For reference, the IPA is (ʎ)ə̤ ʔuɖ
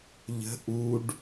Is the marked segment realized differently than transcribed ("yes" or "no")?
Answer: no